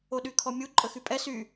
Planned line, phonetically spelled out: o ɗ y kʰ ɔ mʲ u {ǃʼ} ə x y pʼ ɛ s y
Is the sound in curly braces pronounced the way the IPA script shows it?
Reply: yes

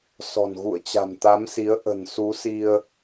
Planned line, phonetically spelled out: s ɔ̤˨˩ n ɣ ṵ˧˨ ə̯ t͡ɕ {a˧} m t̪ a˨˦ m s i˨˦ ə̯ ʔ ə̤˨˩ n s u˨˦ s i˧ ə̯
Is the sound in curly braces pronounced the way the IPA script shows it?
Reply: no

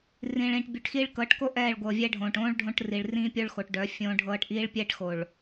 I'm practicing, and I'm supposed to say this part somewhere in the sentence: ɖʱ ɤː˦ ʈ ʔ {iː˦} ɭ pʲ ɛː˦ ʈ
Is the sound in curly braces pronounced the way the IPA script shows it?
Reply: yes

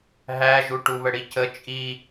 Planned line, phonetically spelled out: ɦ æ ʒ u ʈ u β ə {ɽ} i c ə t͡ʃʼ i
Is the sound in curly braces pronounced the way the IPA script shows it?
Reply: yes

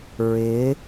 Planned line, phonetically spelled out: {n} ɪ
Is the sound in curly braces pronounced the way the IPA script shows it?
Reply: no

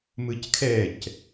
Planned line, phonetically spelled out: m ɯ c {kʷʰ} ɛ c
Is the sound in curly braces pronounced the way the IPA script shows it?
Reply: no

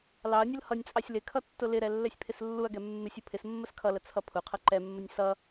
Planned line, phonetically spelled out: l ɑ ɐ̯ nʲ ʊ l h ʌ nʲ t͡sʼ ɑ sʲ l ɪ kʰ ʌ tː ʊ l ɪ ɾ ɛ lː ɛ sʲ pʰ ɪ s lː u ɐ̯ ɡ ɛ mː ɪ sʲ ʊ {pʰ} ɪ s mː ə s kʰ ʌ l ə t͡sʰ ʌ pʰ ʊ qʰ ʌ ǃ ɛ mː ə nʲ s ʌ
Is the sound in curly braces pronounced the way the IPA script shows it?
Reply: yes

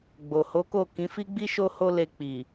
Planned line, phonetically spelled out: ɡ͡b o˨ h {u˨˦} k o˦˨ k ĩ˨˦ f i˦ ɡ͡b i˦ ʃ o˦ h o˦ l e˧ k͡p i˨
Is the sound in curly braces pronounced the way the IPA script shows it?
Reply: no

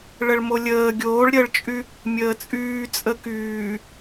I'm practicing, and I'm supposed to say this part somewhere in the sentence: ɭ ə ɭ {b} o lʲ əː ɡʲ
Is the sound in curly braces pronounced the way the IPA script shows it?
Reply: no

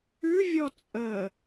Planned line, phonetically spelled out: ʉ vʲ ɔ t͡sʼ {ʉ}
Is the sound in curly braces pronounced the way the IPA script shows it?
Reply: no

